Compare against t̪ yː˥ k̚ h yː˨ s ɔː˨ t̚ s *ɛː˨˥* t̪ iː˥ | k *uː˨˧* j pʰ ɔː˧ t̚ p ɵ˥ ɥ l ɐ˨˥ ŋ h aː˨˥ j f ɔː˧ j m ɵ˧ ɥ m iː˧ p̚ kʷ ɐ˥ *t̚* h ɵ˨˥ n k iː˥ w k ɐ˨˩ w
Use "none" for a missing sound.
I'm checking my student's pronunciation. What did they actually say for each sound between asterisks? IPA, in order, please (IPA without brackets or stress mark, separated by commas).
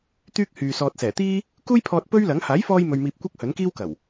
ɛː˨˩, uː˥, k̚